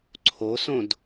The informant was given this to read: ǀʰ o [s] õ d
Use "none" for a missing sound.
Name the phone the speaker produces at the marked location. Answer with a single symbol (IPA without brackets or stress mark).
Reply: s